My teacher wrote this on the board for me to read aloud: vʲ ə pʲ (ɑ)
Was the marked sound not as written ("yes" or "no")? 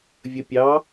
no